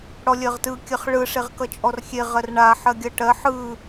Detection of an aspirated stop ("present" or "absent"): absent